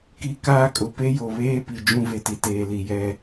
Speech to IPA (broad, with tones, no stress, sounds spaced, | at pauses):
k i˦ k aː˦ kʼ ʊ˨ p e˦ j o˨ β eː˦ p i˨ d͡ʒ ũ˦ v e˨ t i˨ t eː˨ l i˨ j ɛ˦